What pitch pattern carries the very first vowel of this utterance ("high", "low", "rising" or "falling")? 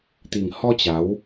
low